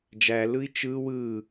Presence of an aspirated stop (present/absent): absent